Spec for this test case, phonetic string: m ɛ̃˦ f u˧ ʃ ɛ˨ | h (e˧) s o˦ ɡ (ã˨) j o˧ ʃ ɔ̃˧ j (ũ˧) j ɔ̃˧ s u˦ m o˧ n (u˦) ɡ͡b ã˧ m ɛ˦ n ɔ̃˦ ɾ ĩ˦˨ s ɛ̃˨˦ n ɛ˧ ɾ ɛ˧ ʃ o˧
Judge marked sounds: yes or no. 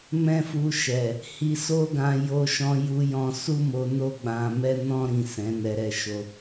no, no, no, no

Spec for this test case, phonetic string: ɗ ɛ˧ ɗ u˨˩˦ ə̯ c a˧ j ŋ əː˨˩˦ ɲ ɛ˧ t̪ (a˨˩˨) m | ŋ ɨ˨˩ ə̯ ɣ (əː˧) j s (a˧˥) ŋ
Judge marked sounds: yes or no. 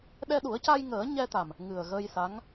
no, yes, yes

